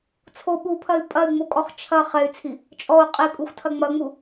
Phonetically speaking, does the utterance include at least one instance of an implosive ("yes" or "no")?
yes